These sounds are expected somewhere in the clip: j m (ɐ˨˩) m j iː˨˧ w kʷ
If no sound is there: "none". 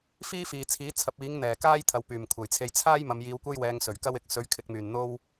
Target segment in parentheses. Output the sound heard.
ɐ˨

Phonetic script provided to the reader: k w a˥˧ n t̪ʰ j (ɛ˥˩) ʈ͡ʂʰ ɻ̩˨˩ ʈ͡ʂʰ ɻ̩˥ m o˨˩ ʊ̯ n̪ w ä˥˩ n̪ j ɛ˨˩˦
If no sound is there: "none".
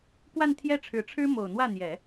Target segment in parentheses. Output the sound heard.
ɛ˥˩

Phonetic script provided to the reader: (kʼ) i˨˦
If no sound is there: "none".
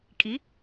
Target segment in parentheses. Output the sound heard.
kʼ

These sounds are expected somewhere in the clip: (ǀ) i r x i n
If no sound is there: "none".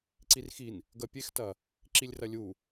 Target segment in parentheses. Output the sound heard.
ǀ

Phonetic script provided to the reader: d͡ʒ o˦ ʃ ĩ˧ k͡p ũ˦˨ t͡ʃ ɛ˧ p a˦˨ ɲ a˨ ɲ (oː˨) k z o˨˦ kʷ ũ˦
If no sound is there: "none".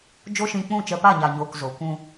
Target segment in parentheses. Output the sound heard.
oː˨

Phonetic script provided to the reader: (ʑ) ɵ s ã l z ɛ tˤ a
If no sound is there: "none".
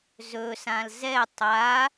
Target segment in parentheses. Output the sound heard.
z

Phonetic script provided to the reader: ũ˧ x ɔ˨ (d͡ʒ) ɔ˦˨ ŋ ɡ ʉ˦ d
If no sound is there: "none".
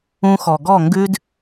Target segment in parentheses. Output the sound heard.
ɡ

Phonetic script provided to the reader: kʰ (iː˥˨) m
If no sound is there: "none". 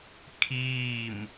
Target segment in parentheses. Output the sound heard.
iː˥˨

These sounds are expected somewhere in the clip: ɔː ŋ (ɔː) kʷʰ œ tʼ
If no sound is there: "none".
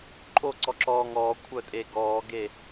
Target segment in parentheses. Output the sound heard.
ɔː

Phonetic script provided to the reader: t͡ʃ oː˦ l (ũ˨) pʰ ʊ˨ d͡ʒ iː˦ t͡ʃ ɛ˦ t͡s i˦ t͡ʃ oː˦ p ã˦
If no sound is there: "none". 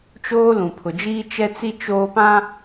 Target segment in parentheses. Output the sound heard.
ũ˨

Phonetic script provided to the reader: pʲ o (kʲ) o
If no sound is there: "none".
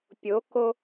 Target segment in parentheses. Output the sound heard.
k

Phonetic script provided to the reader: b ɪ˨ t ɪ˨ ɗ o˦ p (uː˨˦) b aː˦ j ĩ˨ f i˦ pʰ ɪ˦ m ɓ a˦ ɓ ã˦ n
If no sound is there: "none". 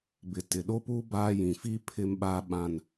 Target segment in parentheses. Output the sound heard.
uː˦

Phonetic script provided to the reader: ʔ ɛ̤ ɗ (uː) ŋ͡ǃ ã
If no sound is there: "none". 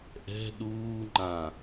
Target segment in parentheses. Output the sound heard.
uː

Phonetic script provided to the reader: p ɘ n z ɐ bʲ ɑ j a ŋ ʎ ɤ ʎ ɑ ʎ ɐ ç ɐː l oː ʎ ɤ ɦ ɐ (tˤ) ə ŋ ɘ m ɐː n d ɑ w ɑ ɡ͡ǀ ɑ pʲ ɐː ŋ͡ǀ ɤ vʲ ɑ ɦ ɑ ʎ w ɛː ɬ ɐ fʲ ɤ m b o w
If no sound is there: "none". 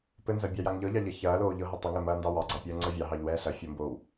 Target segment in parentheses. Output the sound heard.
tˤ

